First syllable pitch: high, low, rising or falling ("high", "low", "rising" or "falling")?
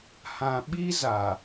low